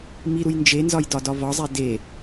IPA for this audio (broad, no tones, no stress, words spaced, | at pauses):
miɾuj nd͡ʒenzɒj dɒdɒvɒzˤe de